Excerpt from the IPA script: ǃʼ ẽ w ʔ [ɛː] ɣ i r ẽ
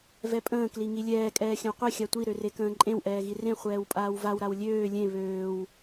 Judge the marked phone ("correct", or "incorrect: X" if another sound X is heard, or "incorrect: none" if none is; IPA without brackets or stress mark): correct